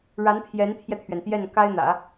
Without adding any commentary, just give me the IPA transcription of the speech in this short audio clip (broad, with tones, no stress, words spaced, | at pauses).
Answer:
ɻa˧˥n pʰjɛ˧˥nt̪ʰjɛ˧t̪ʰɥɛ˩nt̪jɛ˥˩n ka˥ɪ̯n̪ä̰˨˩˦